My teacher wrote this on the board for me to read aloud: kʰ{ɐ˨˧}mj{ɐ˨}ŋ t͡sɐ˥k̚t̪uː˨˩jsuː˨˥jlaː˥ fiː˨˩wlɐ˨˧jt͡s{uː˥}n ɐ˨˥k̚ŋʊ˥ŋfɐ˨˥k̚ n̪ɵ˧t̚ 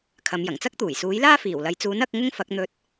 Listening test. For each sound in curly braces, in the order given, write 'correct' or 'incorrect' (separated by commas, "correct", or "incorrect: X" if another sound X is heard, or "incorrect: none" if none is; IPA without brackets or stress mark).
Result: correct, incorrect: ɐ˨˩, incorrect: uː˨˥